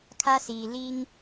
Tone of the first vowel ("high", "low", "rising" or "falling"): high